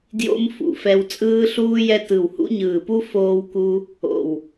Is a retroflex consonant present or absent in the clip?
absent